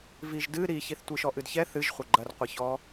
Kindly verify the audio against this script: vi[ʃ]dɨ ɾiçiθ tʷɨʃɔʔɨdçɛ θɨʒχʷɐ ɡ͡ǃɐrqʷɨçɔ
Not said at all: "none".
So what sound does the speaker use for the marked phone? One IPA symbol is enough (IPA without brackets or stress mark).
ʒ